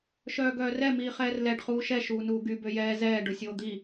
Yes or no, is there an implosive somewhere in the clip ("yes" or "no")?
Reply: no